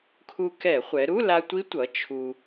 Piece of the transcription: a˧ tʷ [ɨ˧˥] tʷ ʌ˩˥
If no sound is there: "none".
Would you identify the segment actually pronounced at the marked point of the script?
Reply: i˧˥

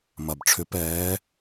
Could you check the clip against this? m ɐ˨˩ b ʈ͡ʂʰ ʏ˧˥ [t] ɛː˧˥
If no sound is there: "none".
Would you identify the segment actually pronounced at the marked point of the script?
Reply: p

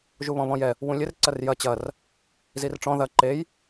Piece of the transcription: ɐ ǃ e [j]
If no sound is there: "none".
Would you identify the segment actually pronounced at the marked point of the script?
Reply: j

